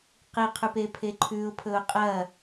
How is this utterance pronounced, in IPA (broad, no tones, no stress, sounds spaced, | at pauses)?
q i qʰ ʉ p e pʰ e ǃʰ ʉ ʊ̯ pʰ ɵ ʊ̯ qʼ ɐ